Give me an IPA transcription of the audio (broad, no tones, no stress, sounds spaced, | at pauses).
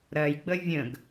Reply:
ɾ ɜ j ɡ͡b ə vʲ ə̃ ɡ